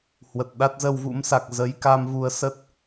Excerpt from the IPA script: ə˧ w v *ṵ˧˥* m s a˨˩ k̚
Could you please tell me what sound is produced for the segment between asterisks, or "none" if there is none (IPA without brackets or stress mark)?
ṵ˧˥